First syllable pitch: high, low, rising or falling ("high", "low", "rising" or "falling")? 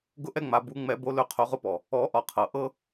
high